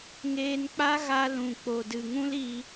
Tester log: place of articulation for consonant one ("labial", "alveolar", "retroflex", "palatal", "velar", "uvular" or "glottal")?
velar